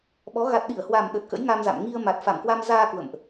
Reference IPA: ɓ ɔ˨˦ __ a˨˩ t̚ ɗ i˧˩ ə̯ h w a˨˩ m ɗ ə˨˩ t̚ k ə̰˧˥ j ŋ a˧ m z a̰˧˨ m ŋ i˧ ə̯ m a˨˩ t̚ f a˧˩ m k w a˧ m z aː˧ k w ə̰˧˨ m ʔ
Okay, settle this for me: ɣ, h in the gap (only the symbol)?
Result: ɣ